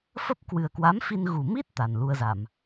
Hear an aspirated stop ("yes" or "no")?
no